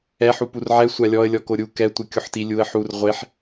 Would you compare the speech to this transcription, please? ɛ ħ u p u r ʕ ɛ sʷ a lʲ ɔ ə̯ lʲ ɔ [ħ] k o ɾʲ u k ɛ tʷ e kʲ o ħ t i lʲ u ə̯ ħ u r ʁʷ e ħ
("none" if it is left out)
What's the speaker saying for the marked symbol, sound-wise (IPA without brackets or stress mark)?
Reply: none